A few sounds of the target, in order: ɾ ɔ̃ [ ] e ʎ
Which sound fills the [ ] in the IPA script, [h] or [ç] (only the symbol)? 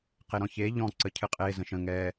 ç